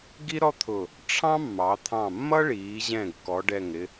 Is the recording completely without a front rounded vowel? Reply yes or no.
yes